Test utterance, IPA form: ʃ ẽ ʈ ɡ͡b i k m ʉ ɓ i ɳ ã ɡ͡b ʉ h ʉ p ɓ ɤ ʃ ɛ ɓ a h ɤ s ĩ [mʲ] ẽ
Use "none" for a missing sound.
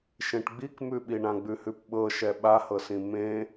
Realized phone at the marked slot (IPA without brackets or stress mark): m